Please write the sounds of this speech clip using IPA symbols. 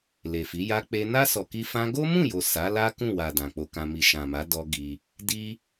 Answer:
l e˨ f i˨˦ j a˧ k͡p e˧ n a˦ s ɔ˧ k i˦ f ã˧ ɡ o˦ m ũ˦˨ j o˨ s a˨˦ l a˦ k ũ˦˨ w a˨ d ã˨ k͡p o˧ k ã˧ m i˨ ʃ ã˨ m a˨˦ d ɔ˦ ɡ i˧ | d i˦

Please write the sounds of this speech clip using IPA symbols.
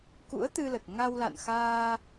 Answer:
k ṵ˧˥ ə̯ t̪ ɨ˧ l ə˨˩ t̚ ŋ a˧ w l a̰˧˨ n x aː˧

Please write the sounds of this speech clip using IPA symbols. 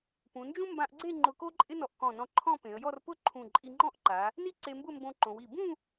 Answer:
p ũ˩˧ n d͡ʒ ũ˥ m b ã˧ ʔ ɡ͡ǀ e˥˧ ŋ͡ǃ ʊ˧ k o˥ ǃʼ ɪ˥ n ɔ˧ ʔ k ɔ̃˧˩ n ɔ̃˧ ǃʰ ɔ̃˥˧ p ẽ˩˧ ə̯ j ɔ˥˧ r p ʊ˥˧ ǃʰ ũ˧˩ ǃʼ i˧ ŋ͡ǃ ɔ̃˥˧ ʔ ǃ a˩˧ | n i˥ ǀ e˧ m b ʊ˥˧ m b õ˧ ǃ õ˩˧ w i˧˩ b ũ˥˧

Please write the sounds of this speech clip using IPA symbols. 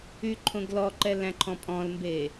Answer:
y ǃʰ õ ɡ l ɔ ǃ ɛ l æ̃ ǃʰ ɔ̃ pʼ ɔ̃ l m b eː

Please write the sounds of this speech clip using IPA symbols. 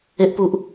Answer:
e ʔ p u ʔ

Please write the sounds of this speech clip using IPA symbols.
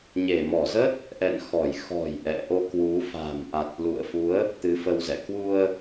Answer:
ɲ e˧˩ m ɔ˧˩ z ə˦˥ t̚ | ʔ ɛ̰˧˨ n x ɔ˧˩ j x ɔ̤˨˩ j ʔ ɛ̰˧˨ ʔ o˧ k w u˨˦ f a̤˨˩ m ʔ a˨˩ t̚ l ṵ˧˨ ə̯ f u˨˦ ə̯ | t̪ ɨ˨˦ f ə˧ w z ɛ̰˧˨ k w u˧ ə̯

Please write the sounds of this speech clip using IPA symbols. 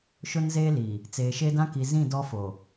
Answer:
ʃ ʊ˦ n z eː˦ l iː˨ | t͡s eː˨ ʃ e˦ d ã˦ k i˨ z ĩ˦˨ d ɔ˦ f oː˨

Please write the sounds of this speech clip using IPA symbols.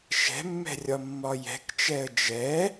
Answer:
ʃ ɛ̤ mː ɛ̤ rʲ ɒ mː ɒ j ɛ̤ k t͡ʃ ɛ ə̯ d͡ʒ ɛ

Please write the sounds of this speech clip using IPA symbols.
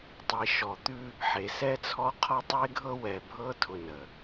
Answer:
tˤ i˨ ʃ ɔ˨ t̪ ʉ˦ | ħ e˨ s ɛ˦ t͡sʰ ɔ˦ qʰ ɒ˦ tˤ e˦ ɡʱ ɤ˦ w ɛ˨ bʱ ɤ˦ tʰ ʊ˦ n ə˨

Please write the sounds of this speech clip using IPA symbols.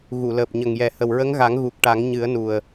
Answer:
ɣ u˨˩˨ l əː˨˩ p̚ ɲ ə˨˩ ŋ j ɛ˨˩ h ə˨˩ w ɹ ə˧˥ ŋ ɣ a˨˩˦ ŋ ɣ u˨˩ k̚ ʈ a˨˩˦ ŋ ɲ ɨ˨˩˦ ə̯ n u˨˩ ə̯

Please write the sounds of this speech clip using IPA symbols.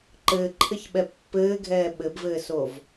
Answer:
ǃ ɘː ǃʰ ɘ ç ɓ ɛ pː ɘː ɡʱ ɛː ɓ ɘ b v ɘː s o v

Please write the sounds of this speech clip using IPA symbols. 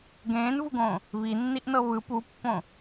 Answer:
ɡ ẽː n v u ɡ õː | β i nː i ʔ n ɤ β ɯ p u pː õ

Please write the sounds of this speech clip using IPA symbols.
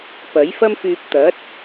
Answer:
p ɐ˨˥ j f ɐ˥ m f yː˧ p̚ t̪ ɐ˨˥ t̚

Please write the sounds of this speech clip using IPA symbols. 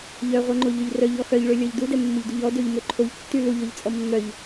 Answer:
ʎ œ ʁʷ œ ŋ͡ǃ o ʎ ø ʎ r œ ʎ ɔ x œ ʎ ɭ ø lʲ ɔ ʎ d u d ɛ mː o ʎ d u ʎ ɔ d ø ʎ m ø ǃʰ o ʎ tː y l u ʎ ɔ ʎ t͡sʼ ɔ mː œ ʎ

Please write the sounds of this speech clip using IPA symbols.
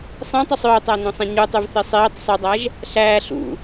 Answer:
sˤ ĩ tˤ ɯ sˤ øː tˤ æ n õ sˤ ĩ ɲ u tˤ y v θ i sˤ iː tˤ sˤ y dˤ æ ʒ | ɬ æː ɬ ṵ

